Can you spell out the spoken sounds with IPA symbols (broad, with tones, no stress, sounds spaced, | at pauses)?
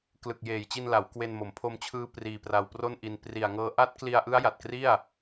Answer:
k l ɯ˨˩ k̚ j eː˨˩ j t͡ɕ i˧ n l a˩˦ w k w e˧ n m o˩˦ m pʰ o˧ m t͡ɕʰ ɯː˦˥ p r iː˧ p r a˧ w p r o˥˩ n ʔ i˧ n p r i˨˩ a̯ ŋ ɤː˦˥ ʔ a˦˥ t̚ k l i˧ a̯ ʔ ɯ˦˥ a̯ j a˨˩ t̚ k r i˥˩ a̯